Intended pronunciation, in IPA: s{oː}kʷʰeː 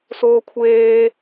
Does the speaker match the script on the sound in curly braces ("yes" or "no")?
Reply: yes